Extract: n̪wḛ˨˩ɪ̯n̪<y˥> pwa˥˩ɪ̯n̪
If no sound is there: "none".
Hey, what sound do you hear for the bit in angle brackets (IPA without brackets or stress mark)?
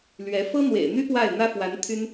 y˥